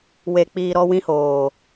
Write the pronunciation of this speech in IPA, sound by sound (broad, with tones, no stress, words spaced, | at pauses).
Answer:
we˧k͡piː˧ ɾɔ˧ wĩ˧hoː˨